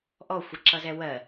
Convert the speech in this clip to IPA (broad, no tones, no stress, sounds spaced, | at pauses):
ʔ ɔ xʷ ʌ ǁ ʌ z ɛ w ɜ